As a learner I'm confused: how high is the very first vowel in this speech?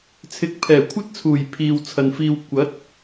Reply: high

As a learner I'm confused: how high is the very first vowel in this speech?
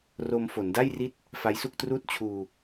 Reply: mid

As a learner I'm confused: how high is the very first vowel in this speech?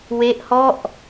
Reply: mid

